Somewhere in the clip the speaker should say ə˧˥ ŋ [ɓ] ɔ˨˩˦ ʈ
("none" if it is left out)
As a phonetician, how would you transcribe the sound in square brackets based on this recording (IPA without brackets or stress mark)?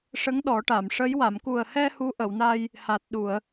ɗ